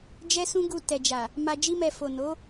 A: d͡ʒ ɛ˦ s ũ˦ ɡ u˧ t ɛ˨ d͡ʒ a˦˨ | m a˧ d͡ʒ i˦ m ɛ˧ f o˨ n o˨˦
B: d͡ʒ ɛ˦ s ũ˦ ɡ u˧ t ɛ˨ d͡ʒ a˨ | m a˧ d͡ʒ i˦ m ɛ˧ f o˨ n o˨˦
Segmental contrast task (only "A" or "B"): B